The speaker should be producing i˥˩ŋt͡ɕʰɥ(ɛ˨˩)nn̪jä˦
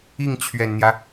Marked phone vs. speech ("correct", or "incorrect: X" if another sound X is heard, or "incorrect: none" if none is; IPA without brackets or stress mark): correct